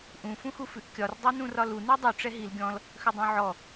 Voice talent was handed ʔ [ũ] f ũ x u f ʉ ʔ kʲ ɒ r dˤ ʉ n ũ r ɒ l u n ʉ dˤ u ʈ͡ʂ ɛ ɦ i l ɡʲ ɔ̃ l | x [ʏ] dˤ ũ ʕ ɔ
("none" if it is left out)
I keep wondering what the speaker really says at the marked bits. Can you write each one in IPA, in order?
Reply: ũ, ʏ

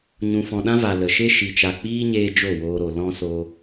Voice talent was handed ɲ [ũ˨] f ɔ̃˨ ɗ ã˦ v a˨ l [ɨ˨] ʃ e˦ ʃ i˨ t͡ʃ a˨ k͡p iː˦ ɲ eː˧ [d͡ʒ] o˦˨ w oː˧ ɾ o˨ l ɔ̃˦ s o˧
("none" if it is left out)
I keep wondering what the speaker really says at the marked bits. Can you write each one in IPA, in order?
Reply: ũ˨, ə˨, d͡ʒ

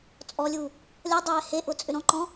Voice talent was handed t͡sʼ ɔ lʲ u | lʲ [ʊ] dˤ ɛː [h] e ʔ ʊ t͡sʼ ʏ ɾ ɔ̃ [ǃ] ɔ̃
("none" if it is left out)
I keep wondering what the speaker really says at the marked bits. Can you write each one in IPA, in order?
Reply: ɔ, h, ǃ

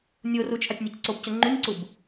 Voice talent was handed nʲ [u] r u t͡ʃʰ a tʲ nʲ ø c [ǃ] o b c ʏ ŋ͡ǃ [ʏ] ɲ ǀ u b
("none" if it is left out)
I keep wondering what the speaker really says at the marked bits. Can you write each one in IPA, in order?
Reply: o, ǀ, y

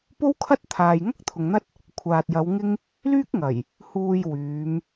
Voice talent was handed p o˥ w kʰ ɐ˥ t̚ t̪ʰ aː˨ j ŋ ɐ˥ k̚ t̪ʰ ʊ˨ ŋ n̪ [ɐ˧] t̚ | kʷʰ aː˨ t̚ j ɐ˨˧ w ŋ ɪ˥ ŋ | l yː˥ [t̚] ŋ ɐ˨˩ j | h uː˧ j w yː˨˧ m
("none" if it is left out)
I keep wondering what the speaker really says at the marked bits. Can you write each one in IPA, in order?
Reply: ɐ˥, k̚

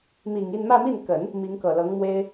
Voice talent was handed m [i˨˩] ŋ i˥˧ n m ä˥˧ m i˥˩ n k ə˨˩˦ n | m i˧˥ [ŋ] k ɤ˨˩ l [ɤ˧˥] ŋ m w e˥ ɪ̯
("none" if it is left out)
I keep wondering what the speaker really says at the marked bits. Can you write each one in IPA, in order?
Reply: i˨˩, ŋ, ɤ˧˥

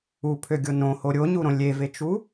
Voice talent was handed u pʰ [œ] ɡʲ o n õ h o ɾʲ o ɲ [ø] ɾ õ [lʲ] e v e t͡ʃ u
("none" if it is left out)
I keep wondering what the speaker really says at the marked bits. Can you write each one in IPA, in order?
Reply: ø, u, lʲ

